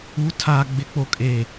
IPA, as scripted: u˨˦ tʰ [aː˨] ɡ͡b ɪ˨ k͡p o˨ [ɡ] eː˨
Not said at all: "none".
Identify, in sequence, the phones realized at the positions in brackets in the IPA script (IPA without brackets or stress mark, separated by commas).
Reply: aː˨, kʼ